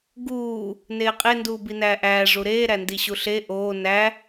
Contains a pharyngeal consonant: no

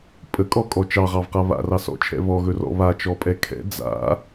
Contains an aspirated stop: yes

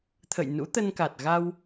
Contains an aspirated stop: yes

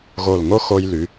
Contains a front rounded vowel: yes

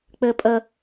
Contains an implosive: no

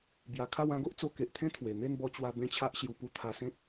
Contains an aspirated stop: yes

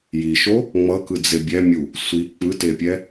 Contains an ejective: no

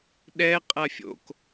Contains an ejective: yes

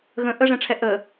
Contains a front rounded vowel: no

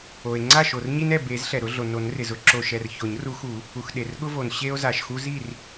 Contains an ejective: no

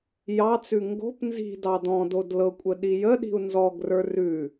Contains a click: no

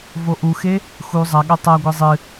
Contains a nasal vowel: no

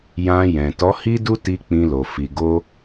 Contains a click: no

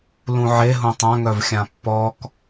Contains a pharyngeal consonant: yes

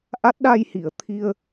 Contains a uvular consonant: no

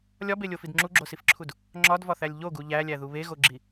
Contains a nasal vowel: no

